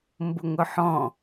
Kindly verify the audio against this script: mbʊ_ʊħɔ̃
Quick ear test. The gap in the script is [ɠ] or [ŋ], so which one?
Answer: ŋ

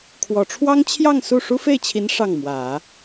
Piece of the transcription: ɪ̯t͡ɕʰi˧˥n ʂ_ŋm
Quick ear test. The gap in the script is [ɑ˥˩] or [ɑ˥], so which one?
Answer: ɑ˥˩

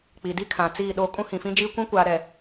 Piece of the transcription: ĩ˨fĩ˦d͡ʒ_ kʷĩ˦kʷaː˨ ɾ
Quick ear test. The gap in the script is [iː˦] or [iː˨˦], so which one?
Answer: iː˦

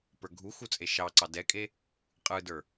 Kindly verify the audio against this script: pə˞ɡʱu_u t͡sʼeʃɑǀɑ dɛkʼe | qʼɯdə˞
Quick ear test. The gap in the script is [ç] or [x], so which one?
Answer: x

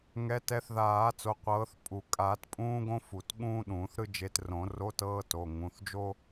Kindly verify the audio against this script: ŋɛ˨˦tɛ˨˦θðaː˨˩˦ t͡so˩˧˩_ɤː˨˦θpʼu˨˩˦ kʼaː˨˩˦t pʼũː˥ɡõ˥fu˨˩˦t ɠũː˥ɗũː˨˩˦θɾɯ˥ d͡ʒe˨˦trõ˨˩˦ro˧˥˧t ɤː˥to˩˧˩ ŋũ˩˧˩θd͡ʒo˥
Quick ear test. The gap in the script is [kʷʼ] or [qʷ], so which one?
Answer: qʷ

